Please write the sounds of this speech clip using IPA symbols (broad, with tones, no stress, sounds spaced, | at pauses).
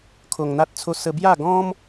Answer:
kʰ o˧ ŋ n̪ a˦ t̚ t͡sʰ o˦ s ə˧ b j a˥˧ ɡ ɔ̃˦ m